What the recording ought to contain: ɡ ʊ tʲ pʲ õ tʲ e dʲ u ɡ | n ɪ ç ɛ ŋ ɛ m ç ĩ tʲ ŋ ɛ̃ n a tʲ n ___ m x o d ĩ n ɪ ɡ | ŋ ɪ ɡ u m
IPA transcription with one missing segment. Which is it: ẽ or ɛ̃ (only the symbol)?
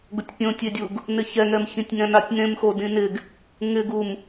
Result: ẽ